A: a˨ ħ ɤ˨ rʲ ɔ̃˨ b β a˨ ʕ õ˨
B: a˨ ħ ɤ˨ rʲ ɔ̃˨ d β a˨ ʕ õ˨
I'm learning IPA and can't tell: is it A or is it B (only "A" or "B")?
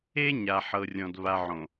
B